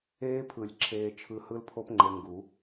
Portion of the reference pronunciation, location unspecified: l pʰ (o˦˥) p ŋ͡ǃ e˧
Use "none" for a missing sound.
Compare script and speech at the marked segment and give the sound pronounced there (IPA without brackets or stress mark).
o˦˥